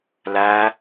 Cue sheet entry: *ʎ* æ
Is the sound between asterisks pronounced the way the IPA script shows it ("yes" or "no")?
no